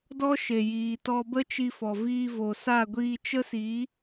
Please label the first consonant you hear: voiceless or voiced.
voiced